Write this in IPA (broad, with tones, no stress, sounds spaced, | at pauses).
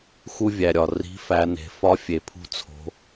x u˧ vʲ æ˩ ɾʲ ɒ˩ r i̤˩˧ f æ˩˧ n e̤˩˧ f ɒ˧˥ fʲ e˩ pʰ ṳ˧ t͡sʰ o̤˩˧